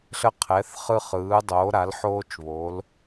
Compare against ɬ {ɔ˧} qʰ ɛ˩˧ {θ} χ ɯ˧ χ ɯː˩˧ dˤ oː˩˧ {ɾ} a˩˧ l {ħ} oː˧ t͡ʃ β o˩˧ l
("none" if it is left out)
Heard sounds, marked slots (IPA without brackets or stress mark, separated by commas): ə˧, θ, ɾ, ħ